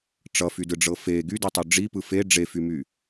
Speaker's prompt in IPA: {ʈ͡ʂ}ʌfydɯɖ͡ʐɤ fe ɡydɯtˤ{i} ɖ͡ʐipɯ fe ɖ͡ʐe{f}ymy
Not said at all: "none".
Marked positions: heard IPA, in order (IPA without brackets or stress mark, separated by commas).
ʈ͡ʂ, y, f